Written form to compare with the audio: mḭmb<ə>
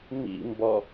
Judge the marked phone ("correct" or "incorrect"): incorrect